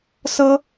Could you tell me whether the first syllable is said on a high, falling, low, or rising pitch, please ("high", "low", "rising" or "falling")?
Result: high